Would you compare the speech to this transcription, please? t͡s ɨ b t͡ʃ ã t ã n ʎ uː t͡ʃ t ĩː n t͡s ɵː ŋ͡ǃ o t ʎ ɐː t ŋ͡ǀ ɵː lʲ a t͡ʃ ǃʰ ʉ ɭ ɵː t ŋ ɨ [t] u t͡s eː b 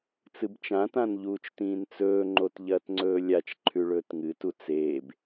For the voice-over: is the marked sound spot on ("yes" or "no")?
yes